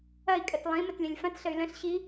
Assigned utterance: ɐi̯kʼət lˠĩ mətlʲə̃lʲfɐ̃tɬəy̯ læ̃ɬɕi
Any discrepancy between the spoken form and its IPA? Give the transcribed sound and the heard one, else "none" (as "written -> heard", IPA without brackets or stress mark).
æ̃ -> ə̃